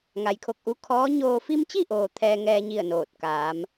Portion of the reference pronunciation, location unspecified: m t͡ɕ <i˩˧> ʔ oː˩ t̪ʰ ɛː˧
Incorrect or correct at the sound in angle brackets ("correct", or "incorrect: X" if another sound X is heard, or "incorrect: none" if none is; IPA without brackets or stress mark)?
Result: incorrect: i˥˨